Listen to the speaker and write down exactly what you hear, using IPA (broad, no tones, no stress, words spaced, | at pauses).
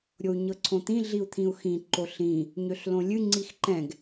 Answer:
ɾʲou̯ɲɤǀʰõt̪ĩ ɮiu̯t̪ʰĩu̯xĩ ǃoɬĩ | ɲøɬlõlʲɨ ŋ͡ǀixǃɛ̃ɡ